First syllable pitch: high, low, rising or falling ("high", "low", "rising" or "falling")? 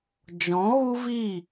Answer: rising